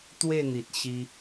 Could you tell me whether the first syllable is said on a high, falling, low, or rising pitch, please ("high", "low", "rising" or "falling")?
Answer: falling